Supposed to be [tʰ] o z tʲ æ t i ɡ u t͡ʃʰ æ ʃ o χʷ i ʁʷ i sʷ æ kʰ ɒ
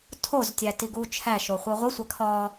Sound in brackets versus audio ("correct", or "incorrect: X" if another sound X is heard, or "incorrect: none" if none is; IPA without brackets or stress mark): correct